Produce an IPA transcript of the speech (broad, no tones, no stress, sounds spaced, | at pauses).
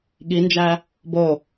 ɠ i n d͡ʒ æ | b o